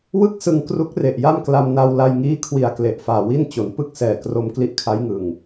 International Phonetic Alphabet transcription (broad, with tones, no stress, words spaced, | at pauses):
wɯ˥˩k̚sɯ˧ŋ kru˦˥k̚re˨˩ʔja˥˩mkla˧m na˧wla˧jŋiː˦˥kʰwi˨˩a̯ kle˨˩ʔfaː˨˩wi˥˩n t͡ɕo˩˦npɯ˥˩k̚sɛː˨˩kro˧m kli˦˥ʔkʰa˦˥jŋɯ˨˩ŋ